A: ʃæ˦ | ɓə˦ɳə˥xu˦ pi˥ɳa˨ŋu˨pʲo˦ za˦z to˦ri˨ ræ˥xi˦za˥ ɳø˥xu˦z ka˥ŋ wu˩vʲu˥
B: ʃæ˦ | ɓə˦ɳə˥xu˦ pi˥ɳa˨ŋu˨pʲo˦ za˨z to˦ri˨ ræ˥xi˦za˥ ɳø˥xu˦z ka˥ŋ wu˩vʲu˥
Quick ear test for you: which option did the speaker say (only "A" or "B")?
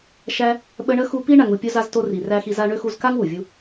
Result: A